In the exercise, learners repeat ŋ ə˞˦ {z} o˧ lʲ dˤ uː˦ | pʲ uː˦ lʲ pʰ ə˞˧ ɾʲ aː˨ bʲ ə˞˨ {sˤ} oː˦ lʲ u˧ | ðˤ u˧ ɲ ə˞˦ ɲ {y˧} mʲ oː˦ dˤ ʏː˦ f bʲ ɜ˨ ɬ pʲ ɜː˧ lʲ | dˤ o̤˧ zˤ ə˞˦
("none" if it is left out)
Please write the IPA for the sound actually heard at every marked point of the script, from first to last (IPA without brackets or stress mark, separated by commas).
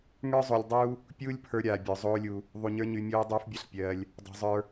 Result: zˤ, zˤ, y˧